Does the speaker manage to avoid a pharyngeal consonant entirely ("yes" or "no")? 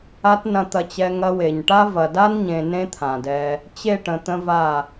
yes